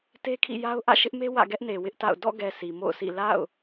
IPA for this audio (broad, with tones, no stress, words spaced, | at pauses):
te˦kʰḭ˦˨ja˦ʊ̯ ʔä̰˦˨ʃɪ˦ʔme˦ wä̰˦˨ɡɛ˦ʔne˨ wɪ˦ʔta̰˦˨ʊ̯ dɔ̰˦˨ɡɛ˨ si˨mo̰˦˨ʊ̯sḭ˦˨ la̰˦˨ʊ̯